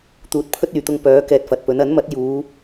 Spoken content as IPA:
t̪ uː˨˥ t̚ pʰ ɵ˥ t̚ yː˨ t̪ ʊ˧ ŋ p œː˨˥ k ɛː˧ t̚ f ɐ˨ t̚ p ɵ˨˥ n ɐ˨˥ n m ɐ˨˥ t̚ j uː˨˧

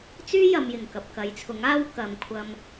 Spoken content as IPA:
t͡s yː˥ j ɐ˨ m j ɪ˨˩ ŋ k ɐ˨ p̚ k ɐ˨˥ j t͡sʰ ʊ˨˥ ŋ aː˥ w k ɐ˨ m kʷʰ ɐ˧ m

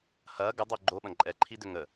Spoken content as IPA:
h ɐː ɡ ə dˤ o ɡ͡ǃ o ɓ ɐ̃ ǃʼ ɛ ǃʰ i d ʏ ŋ ə

